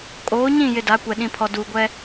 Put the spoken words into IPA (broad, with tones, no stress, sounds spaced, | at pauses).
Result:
kʼ oː˨˦ ɲ ĩ˦˨ j ɪ˨ d a˨˦ kʷ ɛ˨ ɗ ĩ˨ pʰ ɔ˨ d uː˨ ɡʷ ɛ˦